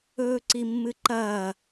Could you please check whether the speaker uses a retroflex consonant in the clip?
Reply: no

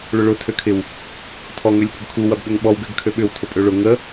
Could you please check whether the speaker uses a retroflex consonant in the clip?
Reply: yes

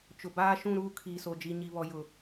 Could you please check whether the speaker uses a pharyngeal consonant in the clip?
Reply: no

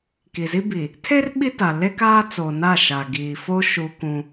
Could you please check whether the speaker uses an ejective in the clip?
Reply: no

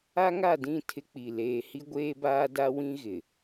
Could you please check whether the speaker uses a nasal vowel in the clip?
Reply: yes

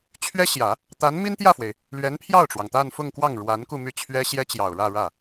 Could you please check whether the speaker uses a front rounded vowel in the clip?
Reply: yes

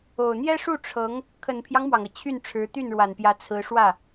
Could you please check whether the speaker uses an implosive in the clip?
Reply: no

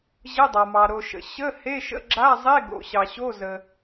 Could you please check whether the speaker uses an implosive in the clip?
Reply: no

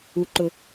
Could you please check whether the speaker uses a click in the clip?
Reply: yes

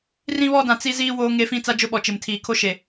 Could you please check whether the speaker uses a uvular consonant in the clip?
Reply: no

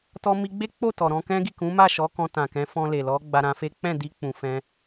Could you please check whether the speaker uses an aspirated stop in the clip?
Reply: no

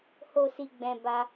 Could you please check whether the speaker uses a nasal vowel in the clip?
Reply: yes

